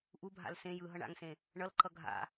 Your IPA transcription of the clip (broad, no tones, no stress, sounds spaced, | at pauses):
ʔ u bʱ a̰ l s ẽ j ɯ ɦ ʌ ɳ a̰ ŋ s ẽ | ɳ ʌ l ǃ ʌ ɡʱ a̰